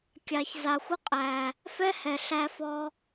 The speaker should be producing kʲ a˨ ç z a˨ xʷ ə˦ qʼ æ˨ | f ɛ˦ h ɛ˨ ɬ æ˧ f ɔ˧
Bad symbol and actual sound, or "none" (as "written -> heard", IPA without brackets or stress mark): none